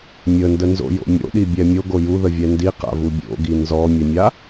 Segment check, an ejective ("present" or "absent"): absent